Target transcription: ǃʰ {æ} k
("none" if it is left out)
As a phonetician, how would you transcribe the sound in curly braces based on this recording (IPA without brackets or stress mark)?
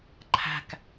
æ̤